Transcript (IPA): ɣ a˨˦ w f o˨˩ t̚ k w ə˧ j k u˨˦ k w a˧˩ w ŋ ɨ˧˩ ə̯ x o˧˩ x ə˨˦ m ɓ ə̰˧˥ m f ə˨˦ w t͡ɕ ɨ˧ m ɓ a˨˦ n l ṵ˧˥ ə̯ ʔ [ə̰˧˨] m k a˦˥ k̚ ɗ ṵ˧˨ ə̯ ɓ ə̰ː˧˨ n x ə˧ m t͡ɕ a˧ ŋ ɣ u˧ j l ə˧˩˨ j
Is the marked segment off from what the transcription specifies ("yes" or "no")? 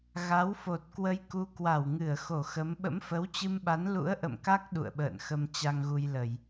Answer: no